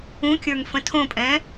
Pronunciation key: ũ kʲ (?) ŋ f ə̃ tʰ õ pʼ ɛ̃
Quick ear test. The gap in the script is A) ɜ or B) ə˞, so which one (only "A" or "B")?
B